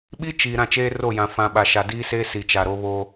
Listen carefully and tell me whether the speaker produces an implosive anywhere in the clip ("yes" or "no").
yes